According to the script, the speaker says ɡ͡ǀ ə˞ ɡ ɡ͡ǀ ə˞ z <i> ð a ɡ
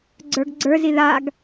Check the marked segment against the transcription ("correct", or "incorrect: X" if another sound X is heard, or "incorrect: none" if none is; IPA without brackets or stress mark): correct